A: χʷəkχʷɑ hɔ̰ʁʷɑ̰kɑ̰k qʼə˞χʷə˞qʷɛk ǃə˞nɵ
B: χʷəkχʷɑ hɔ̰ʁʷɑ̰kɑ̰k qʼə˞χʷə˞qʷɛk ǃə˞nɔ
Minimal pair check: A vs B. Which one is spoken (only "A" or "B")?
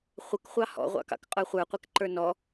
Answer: B